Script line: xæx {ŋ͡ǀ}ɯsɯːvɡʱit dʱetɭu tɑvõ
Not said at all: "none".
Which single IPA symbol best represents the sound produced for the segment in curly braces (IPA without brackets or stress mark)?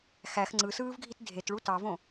ŋ͡ǀ